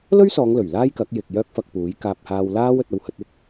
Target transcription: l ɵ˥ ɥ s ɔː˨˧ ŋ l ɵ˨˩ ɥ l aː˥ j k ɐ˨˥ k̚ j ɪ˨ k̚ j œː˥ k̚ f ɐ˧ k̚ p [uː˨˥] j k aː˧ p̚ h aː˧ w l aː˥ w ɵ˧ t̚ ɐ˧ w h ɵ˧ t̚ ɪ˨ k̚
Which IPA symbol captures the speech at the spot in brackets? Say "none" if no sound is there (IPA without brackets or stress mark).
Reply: uː˨˥